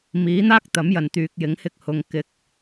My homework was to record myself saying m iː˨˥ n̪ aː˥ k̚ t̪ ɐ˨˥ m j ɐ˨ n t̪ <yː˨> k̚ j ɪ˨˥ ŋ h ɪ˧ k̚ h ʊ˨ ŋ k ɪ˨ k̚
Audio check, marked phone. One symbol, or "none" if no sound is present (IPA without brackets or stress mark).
yː˨